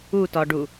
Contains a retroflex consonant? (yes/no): yes